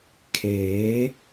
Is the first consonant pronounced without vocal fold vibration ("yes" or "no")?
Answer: yes